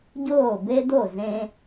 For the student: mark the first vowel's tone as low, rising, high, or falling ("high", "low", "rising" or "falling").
falling